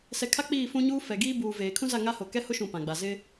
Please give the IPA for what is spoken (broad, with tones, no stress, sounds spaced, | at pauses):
s ɛ˨ kʰ a˦ k͡p iː˦˨ f ũ˦ ɲ uː˦ f ɛ˨ ɡ iː˦ b uː˨ v eː˨ kʰ ũ˦ z a˦˨ ŋ a˦ h o˨ k ɛ˦ h ʊ˦ ʃ ũ˨ p ã˨ ɡ͡b a˨ z ɪ˦